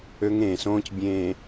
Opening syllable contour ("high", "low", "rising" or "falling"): high